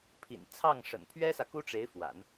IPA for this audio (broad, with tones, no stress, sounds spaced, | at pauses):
pʰ ḭ˨˩ n t͡sʰ ɑ˥˩ ŋ ʂ ə̰˨˩ n pʰ ɥ ɛ˥ s ä˨ k u˥ ʈ͡ʂ e˧˥ ɪ̯ f w a̰˨˩˦ n